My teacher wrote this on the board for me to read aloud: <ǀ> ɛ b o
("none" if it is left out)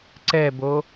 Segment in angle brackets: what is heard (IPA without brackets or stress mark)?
ǀ